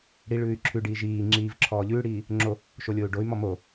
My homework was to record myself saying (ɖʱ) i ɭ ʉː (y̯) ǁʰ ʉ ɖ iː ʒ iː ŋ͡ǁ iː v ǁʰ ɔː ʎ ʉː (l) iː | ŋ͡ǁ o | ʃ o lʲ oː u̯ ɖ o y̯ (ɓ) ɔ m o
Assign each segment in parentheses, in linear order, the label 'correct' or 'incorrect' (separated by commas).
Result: incorrect, correct, incorrect, incorrect